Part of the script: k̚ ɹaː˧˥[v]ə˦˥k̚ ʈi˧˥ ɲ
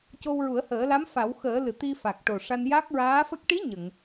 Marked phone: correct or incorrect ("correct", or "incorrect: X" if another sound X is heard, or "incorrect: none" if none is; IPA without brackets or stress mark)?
incorrect: f